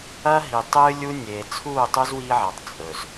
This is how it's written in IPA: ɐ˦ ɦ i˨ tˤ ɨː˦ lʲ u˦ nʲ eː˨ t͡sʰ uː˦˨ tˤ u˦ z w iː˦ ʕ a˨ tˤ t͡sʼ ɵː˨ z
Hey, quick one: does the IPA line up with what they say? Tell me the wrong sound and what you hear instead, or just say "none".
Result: ɵː˨ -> ɵ˨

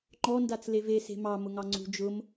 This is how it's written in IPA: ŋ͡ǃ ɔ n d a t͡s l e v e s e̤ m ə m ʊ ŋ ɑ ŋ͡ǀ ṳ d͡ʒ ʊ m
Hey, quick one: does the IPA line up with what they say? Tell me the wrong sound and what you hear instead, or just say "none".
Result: ə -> ɑ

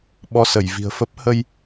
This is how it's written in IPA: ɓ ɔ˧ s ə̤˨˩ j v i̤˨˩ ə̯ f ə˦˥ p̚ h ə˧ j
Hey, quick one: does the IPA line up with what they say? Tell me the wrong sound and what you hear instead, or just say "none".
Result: ə̤˨˩ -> ə˧˩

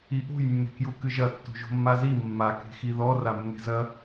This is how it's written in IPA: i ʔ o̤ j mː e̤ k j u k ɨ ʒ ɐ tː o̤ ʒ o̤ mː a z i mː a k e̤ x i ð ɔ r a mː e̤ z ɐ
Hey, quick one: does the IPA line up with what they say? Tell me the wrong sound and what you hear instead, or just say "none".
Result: none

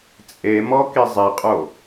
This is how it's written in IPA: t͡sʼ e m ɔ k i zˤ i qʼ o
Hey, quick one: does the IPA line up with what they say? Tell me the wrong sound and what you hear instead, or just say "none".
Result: none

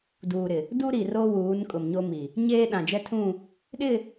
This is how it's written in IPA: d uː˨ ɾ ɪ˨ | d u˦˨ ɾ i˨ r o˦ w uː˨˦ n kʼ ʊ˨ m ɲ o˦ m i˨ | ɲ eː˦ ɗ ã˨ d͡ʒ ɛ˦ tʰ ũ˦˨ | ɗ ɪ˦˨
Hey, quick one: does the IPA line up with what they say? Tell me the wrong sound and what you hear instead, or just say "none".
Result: u˦˨ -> u˦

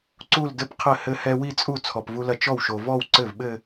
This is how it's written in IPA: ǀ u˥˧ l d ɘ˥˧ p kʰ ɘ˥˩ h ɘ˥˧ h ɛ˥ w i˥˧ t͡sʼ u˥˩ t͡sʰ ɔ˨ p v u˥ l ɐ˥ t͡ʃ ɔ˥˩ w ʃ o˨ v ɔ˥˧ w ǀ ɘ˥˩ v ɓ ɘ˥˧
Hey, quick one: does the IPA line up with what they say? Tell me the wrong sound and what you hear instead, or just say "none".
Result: kʰ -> qʰ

